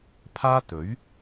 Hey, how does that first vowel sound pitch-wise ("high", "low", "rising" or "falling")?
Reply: high